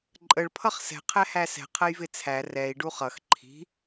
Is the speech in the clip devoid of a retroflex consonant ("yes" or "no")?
no